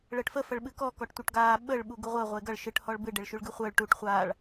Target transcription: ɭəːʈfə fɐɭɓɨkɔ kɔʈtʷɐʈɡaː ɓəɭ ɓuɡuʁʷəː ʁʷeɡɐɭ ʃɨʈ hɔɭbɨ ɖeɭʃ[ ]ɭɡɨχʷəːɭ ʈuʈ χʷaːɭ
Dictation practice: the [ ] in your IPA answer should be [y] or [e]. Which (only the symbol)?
y